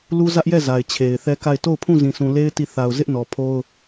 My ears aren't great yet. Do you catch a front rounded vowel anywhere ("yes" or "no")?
no